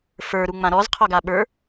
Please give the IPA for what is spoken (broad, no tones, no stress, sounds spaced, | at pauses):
f ə˞ ɾ u ŋ͡m ã ɾ ɔ z qʰ ɔ ɡ a ɓ ə˞